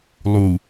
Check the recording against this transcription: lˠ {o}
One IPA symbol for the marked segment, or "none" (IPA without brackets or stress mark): u